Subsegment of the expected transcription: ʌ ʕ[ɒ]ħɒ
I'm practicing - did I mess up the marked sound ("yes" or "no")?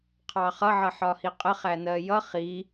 yes